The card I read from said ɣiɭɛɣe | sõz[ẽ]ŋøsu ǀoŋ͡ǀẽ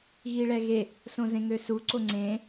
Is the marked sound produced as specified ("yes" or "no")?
yes